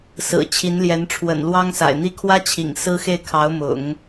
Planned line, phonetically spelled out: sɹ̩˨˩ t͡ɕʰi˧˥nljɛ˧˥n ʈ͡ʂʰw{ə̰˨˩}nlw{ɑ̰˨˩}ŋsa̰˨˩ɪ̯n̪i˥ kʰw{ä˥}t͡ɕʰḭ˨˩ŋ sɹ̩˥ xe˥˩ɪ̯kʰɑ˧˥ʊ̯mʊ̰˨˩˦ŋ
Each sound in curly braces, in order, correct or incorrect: correct, incorrect: ɑ˥, correct

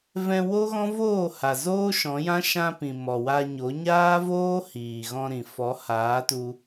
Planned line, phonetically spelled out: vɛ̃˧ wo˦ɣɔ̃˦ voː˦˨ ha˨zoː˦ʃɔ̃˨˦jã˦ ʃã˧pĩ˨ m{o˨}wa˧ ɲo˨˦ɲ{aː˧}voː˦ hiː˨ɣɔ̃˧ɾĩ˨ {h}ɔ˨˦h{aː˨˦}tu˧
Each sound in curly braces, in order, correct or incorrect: incorrect: ɔ˨, incorrect: aː˦, incorrect: f, correct

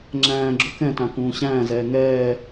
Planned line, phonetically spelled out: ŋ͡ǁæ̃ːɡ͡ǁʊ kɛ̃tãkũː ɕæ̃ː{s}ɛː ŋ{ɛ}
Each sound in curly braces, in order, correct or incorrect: incorrect: z, incorrect: ɛː

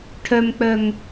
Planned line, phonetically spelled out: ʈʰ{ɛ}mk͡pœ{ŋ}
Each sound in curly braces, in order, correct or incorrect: incorrect: œ, correct

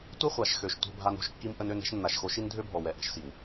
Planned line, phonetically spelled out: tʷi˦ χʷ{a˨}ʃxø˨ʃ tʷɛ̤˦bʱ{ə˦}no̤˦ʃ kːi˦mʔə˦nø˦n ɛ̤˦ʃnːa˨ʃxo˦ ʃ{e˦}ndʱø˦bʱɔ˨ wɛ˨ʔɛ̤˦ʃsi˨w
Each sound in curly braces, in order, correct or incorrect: correct, incorrect: a˦, incorrect: i˦

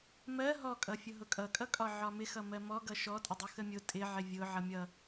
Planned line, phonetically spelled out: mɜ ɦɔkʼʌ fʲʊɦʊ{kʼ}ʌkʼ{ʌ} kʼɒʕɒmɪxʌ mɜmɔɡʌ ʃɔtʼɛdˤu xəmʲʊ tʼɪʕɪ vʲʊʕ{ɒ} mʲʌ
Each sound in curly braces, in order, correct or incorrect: correct, correct, incorrect: ʌ

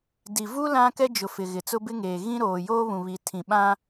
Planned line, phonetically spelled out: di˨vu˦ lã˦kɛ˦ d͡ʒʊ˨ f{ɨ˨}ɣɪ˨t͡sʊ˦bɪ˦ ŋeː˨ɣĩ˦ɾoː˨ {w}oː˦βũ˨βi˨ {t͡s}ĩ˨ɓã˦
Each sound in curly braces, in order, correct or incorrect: incorrect: ɪ˨, incorrect: j, incorrect: tʰ

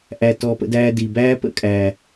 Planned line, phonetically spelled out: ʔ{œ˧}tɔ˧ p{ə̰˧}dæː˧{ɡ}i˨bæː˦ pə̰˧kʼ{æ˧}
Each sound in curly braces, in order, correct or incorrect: incorrect: æ˧, correct, incorrect: d, incorrect: æ˨

